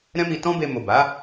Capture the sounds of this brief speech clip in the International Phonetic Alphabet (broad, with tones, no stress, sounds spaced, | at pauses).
ɾ ɛ̃˦ m i˧ t ɔ̃˦ b e˧ m o˨ b a˨˦